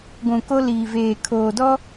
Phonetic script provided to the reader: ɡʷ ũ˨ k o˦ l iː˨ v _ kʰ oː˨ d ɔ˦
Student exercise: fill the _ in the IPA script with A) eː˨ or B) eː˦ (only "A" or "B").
A